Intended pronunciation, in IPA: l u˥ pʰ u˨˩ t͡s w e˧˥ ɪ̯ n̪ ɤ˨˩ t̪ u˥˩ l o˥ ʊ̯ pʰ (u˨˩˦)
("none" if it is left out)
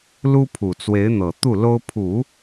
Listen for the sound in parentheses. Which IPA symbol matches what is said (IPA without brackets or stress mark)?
u˨˩˦